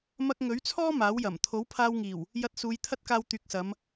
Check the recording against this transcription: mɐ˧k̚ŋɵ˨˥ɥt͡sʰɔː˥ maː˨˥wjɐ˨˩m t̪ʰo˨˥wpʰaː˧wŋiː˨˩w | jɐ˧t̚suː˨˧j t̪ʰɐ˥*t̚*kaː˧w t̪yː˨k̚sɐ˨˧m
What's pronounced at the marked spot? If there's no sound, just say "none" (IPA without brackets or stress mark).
t̚